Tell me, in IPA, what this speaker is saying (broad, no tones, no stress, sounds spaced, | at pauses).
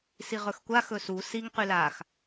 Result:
s i ʁ ɵ x kʷ a x ɵ s u s i ŋ q y l a x